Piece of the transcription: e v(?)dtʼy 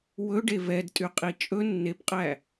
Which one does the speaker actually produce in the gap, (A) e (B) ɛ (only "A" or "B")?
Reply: B